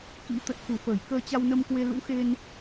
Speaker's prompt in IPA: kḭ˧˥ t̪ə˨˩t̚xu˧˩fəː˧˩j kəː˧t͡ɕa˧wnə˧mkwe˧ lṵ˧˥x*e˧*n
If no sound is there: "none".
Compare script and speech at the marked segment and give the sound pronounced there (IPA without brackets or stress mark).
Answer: e˧